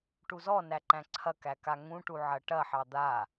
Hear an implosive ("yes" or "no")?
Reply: no